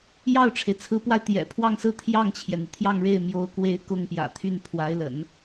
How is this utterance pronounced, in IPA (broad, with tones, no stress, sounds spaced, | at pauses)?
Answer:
j ɑ˥˩ ʊ̯ ʈ͡ʂʰ e˩ ɪ̯ t͡sʰ ɹ̩˧˥ p w a˧ ɪ̯ t̪ j ɛ̰˨˩ pʰ w ɑ˥˧ ŋ s ɹ̩˥˧ t̪ʰ j ɑ˥˩ ŋ t͡ɕʰ j ɛ˩ n̪ i˩ t̪ʰ j ɑ˥˧ ŋ ɻ e˥˩ ɪ̯ m j o˧˥ ʊ̯ k w e˧˥ ɪ̯ k ʊ˥˩ ŋ p j ä̰˨˩ t̪ʰ y˥˩ n pʰ w a˧˥ ɪ̯ l ə̰˨˩˦ n